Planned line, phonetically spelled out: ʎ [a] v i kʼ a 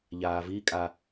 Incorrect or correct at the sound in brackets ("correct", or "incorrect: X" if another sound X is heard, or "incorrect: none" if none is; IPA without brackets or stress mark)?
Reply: incorrect: aː